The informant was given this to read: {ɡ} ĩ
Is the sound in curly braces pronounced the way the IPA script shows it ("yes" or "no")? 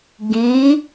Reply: yes